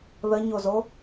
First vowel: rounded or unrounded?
unrounded